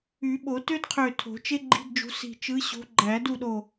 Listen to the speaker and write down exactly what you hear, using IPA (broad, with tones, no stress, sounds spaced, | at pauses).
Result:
y˨˩˦ ɓ o˨˩˦ t ø˥ d qʰ ø˧˩ tʰ o̤˨˩˦ t͡ʃ e˥ ɡ͡ǃ i̤˧˥˧ d d͡ʒ ṳ˨˥ s i̤˧˩ t͡ʃ ɯ˨˥ ɕ o̤˨˥ ɡ͡ǃ æ˨˩˦ d u˥˩ ɗ o˧˩